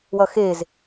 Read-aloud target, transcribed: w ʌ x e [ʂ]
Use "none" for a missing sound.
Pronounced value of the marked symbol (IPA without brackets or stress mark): z